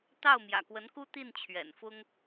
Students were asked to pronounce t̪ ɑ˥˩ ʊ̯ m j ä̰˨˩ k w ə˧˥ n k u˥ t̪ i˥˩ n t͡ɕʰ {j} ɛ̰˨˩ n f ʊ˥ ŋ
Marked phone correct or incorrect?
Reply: incorrect